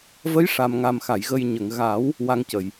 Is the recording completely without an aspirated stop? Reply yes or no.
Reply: yes